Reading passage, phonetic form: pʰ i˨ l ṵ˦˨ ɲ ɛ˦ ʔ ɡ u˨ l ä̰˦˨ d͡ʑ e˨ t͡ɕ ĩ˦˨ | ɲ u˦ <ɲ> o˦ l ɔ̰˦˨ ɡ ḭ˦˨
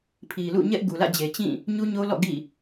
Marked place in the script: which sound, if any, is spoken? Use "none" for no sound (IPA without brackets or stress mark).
ɲ